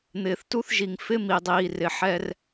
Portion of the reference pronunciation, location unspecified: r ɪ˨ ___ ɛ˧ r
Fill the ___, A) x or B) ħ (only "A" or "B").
B